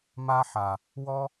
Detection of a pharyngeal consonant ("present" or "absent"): present